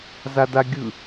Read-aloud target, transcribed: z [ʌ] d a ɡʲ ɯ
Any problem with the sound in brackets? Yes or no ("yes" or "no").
yes